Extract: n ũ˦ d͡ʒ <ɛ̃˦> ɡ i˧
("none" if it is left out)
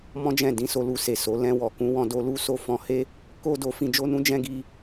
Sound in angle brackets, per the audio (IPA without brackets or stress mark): ɛ̃˦